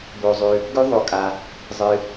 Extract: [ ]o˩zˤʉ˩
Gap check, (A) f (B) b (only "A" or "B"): B